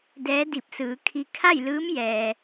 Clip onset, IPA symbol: d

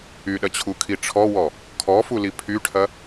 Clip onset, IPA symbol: y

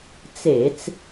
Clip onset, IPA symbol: t͡s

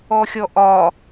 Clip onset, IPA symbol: ɔ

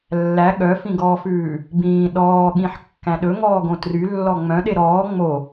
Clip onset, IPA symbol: lː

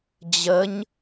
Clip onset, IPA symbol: d͡ʑ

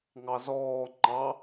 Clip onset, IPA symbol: ŋ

